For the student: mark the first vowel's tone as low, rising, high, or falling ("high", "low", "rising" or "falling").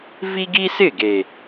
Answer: high